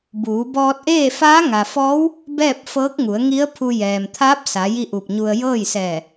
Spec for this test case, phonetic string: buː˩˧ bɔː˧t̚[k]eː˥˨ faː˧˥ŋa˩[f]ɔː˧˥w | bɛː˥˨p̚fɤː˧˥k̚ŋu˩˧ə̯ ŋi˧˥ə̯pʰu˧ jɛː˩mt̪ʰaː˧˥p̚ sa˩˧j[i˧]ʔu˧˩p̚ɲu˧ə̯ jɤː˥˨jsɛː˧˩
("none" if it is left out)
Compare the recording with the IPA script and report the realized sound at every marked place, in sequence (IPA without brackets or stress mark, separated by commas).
ʔ, f, i˥˨